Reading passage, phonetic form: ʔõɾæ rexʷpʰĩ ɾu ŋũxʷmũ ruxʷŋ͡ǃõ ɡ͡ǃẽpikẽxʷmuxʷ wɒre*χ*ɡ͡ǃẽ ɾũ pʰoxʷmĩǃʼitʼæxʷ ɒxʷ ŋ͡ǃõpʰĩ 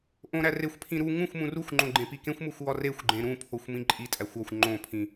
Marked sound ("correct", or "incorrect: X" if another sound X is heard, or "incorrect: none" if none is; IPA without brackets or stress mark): incorrect: xʷ